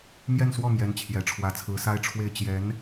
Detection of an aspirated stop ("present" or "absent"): present